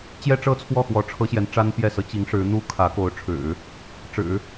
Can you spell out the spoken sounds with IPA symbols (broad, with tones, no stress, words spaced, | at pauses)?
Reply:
t͡ɕjɛ˥ʈ͡ʂɤ˥t͡sʰwɔ˥˩xwɔ˧˥ ʈ͡ʂʰɤ˥ɕjɛ˧˥n ʈ͡ʂa˥npjɛ˥˩sɤ˥ t͡ɕi˧˥ŋʂɻ̩˧˥ n̪u˥kʰä˧˥ko˧˥ʊ̯ʈ͡ʂʰɻ̩˨˩˦ | ʈ͡ʂɻ̩˨˩˦